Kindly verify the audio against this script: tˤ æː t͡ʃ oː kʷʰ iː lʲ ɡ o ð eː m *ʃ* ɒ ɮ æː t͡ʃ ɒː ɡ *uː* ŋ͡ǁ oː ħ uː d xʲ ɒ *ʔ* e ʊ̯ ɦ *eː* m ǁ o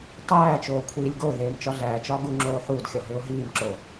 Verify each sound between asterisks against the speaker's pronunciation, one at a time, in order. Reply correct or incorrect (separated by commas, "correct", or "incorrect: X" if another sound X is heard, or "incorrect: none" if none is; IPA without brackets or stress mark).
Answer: incorrect: t͡ʃ, incorrect: u, incorrect: ɦ, incorrect: iː